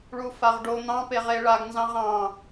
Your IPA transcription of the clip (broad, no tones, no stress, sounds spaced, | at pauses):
ɭ u f a ʁ ɖ o n̪ ɑ̃ p e ʁ e ɭ a ɡ n z ɑ̃ ʁ ɑ̃